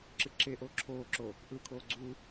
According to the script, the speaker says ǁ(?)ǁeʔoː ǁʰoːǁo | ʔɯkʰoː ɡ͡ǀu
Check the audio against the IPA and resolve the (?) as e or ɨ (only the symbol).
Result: ɨ